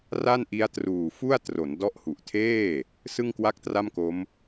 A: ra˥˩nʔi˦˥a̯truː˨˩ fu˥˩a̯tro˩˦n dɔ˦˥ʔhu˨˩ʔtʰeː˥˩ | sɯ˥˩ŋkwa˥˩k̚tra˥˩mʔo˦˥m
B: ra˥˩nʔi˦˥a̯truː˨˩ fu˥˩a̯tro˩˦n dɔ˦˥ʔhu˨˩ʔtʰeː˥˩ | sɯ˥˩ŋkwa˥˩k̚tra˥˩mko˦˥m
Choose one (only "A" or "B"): B